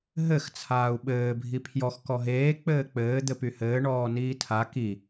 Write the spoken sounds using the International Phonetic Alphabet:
ɦɘx t͡sʰaːu̯ɓɘː bʱipʰjɔx kɔɦeː k͡pɘːk͡pɘː d̪ɘpyhɘː ɳɔːniːtʰa ki

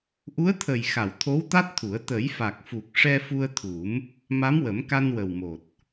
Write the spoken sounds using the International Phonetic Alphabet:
ʔu˧˥ə̯t̪ʰə˨˩jxa˨˩˨w t̪ʰo˧˥wt̪a˦˥t̚t̪ʰu˨˩˦ə̯ t̪ə˨˩˦jfa˨˩k̚fu˨˩k̚ ʂɛ˧ fu˧ə̯t̪ʰu˨˩˦m | ma˧˥mwə˨˩˦m ka˧nwə˨˩wmo˨˩t̚

